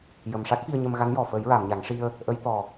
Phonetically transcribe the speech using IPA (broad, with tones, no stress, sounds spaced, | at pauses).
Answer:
j ə˨˩ m ʂ a˦˥ k̚ f i˧ ə̯ ɲ ə˧ m ɣ a˧˥ n j ɔ˨˩ f ə˨˩˦ j ɹ a˨˩˨ m ɲ a˨˩˦ ŋ ʂ i˧ ə̯ | ʔ ə˧˥ j t̪ ɔ˨˩